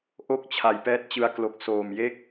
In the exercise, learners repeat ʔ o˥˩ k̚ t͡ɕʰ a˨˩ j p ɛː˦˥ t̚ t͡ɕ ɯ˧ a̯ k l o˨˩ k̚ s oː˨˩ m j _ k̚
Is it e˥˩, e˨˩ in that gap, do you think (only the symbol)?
e˥˩